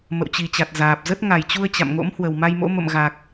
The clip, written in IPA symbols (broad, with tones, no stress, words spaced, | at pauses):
mə̰˧˨wt͡ɕi˨˩t͡ɕa˨˩t̚ zaː˨˩p̚zə˦˥t̚ ŋa˨˩jt͡ɕu˧ə̯ t͡ɕa̰˧˨m ŋo̰˧˥m hwə˨˩wma˧jmo̰˧˥ mə̰˧˨mɣa˨˩k̚